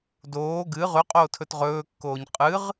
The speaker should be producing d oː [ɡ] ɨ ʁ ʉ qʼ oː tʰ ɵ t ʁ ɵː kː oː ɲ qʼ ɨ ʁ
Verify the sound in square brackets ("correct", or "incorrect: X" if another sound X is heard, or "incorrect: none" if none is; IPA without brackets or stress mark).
correct